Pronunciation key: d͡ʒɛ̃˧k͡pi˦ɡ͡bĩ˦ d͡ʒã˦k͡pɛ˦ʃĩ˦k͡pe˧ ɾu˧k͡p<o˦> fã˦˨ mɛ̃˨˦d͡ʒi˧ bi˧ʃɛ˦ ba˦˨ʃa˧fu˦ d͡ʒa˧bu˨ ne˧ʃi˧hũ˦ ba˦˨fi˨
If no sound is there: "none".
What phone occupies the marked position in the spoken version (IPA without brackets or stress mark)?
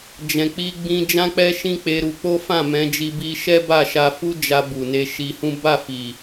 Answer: o˦